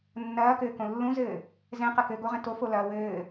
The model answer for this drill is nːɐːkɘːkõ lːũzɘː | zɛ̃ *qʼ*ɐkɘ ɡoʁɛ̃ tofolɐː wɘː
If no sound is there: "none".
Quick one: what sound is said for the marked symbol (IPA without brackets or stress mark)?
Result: q